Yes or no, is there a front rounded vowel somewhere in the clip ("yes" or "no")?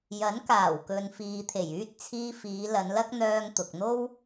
yes